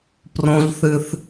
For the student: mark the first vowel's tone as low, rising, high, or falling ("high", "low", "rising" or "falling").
high